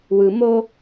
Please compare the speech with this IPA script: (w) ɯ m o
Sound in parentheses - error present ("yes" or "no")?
no